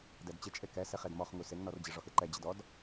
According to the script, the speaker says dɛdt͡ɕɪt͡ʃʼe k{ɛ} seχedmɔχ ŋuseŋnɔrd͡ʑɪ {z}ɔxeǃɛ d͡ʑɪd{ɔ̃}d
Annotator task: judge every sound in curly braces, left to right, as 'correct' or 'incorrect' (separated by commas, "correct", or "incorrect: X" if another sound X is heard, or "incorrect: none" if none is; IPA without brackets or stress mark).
correct, incorrect: ʐ, incorrect: ɔ